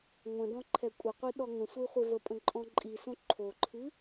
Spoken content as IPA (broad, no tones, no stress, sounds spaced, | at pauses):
ŋʷ ə̃ d ɔ̃ ǃʰ ɛ kʷʼ ə qʷ i ɗ ɔ ŋ ə̃ sʷ i χʷ e v ə pʼ ə̃ ǃʼ ɔ̃ ǃʼ i s õ ǃʰ o ǃʰ ɨ